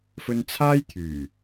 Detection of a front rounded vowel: present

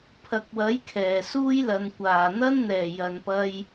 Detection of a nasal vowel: absent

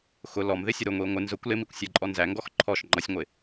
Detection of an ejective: present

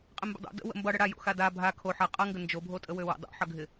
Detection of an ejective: present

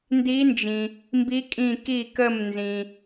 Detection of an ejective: present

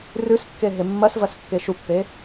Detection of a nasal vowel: absent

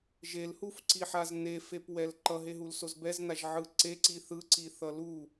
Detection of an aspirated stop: absent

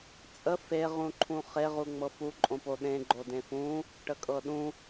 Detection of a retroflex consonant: present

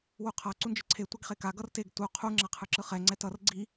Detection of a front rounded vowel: absent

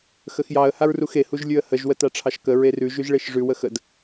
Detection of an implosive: absent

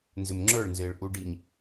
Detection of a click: present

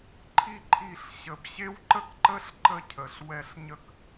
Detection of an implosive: absent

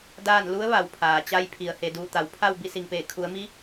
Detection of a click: absent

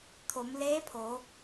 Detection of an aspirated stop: present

